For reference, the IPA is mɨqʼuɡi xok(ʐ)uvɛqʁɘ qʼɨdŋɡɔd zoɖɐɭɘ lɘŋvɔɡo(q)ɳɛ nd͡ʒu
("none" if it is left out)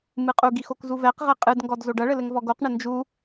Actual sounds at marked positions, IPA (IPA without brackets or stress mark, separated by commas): z, q